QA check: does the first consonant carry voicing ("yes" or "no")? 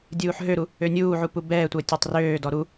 yes